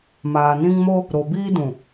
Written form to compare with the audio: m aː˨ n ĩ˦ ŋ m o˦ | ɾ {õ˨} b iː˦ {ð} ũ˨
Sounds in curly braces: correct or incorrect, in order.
incorrect: o˨, incorrect: d

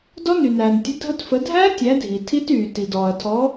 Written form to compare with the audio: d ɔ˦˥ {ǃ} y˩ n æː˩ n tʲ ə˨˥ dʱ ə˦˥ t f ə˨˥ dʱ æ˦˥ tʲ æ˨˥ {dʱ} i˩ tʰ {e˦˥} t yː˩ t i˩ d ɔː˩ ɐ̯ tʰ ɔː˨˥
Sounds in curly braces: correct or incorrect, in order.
incorrect: n, correct, incorrect: i˦˥

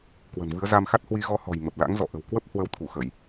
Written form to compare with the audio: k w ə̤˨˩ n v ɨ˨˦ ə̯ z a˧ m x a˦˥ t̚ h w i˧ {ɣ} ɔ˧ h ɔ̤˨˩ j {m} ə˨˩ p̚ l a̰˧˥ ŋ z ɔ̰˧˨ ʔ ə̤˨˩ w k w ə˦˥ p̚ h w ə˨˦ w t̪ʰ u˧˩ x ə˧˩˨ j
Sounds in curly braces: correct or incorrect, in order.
correct, correct

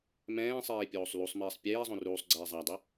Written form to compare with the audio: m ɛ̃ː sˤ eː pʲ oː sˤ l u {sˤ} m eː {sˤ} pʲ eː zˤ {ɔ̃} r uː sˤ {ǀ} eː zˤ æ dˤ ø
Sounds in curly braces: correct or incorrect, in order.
correct, correct, incorrect: õ, incorrect: ɡ͡ǀ

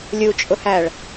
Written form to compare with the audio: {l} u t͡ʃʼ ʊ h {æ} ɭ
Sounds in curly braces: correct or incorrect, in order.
incorrect: lʲ, correct

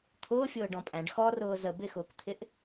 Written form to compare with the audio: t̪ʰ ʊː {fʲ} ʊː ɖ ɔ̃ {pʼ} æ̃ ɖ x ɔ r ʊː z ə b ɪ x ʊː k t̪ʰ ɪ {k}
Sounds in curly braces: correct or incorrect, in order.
correct, correct, incorrect: ʔ

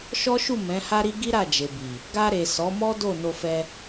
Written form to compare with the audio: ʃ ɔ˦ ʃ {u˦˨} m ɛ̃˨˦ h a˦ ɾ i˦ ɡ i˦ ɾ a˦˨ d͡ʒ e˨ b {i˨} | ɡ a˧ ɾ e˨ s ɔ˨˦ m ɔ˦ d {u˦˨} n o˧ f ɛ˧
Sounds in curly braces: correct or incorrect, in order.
correct, correct, incorrect: o˦˨

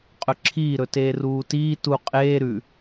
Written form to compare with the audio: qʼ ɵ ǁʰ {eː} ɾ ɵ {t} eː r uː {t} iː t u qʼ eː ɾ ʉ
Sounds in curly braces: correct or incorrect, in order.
incorrect: iː, correct, correct

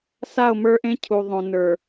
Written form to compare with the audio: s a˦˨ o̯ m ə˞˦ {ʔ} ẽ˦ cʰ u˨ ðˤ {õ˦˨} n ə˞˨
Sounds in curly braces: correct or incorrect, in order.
correct, incorrect: õ˨

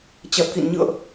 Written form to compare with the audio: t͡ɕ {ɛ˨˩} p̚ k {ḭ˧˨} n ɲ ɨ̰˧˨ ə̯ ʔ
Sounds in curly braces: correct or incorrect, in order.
correct, correct

